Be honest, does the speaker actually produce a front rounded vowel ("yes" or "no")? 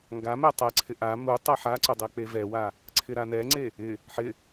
no